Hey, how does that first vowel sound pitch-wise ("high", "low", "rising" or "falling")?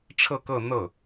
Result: falling